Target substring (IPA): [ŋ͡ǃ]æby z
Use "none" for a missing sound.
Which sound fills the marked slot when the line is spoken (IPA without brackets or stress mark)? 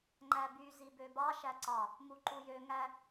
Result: ŋ͡ǃ